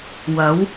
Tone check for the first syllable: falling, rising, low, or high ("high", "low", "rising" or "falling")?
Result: rising